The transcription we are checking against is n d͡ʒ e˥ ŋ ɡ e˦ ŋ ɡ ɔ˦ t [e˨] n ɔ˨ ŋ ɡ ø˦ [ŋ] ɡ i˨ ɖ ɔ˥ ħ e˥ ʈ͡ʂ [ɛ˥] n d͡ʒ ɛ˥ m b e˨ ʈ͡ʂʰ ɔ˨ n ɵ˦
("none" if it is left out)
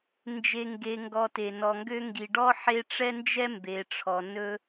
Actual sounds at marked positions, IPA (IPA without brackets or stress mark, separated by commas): e˨, ŋ, ɛ˥